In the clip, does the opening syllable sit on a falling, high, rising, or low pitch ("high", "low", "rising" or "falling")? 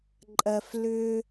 high